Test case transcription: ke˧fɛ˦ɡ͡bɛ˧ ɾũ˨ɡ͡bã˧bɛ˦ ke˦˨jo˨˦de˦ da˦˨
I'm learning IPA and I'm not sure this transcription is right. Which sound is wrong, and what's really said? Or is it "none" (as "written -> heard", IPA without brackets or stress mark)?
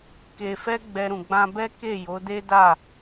none